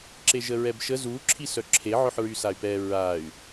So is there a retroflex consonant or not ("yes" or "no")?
no